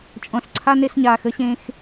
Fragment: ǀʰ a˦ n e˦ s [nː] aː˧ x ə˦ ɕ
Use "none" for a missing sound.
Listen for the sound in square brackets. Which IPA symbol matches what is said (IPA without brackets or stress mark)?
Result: ɲ